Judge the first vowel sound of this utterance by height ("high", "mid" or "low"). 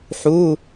high